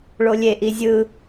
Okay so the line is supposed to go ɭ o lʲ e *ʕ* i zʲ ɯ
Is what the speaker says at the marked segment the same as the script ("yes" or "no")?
no